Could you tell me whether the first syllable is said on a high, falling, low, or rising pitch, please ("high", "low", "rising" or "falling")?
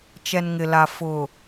low